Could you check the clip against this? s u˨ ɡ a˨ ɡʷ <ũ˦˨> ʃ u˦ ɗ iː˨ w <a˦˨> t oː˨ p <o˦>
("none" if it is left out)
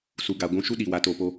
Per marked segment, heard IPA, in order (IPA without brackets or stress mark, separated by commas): ũ˧, a˨˦, o˧